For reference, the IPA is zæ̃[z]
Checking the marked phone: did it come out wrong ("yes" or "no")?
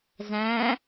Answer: yes